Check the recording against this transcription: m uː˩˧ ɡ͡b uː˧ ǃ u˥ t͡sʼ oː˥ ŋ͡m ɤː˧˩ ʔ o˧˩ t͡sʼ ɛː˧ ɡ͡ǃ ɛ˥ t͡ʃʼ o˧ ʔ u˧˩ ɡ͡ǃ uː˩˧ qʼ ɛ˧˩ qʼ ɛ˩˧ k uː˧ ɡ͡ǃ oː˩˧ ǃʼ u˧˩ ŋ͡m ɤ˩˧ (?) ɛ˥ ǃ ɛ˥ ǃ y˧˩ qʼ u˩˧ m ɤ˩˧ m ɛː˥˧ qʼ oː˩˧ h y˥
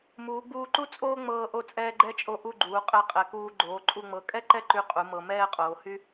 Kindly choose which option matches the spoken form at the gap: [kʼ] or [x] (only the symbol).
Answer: kʼ